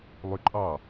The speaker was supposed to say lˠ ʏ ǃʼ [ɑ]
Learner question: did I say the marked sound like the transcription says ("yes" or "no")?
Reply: yes